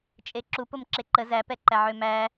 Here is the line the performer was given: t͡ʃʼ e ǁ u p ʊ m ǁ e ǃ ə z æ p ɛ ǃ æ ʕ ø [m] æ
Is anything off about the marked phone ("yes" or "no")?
no